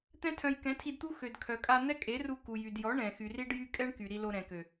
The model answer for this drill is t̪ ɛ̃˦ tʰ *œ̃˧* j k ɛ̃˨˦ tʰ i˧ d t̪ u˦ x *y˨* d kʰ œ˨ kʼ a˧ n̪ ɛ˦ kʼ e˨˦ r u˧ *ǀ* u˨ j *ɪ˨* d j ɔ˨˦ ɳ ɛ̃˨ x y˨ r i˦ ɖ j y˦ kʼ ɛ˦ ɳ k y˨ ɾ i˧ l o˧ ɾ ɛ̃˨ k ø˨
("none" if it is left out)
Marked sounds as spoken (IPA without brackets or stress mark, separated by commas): œ̃˧, ø˨, k, y˨